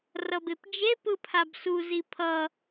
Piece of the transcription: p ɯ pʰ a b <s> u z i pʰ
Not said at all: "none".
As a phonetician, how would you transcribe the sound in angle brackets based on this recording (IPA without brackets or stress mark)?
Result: s